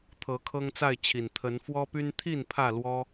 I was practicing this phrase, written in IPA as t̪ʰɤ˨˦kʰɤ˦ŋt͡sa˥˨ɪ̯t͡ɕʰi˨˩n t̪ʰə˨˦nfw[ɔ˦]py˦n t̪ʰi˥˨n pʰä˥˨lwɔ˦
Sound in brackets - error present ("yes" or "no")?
no